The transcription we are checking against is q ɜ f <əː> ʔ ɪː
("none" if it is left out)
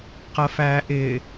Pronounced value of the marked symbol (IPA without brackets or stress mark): æː